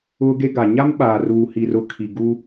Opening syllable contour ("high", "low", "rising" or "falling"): high